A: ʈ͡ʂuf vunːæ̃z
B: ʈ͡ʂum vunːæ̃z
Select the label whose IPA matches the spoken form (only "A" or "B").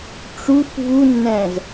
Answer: A